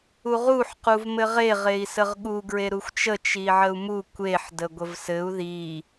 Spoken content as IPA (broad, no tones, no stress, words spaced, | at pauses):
uʁuħ quvmɘʁe ʁei̯səʁɠu ɡɹeɾuxʷt͡ʃə t͡ʃiʕəu̯mu kʷeħ dəɡʷəvsɘu̯ ði